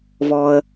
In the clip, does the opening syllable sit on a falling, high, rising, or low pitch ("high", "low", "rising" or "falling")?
low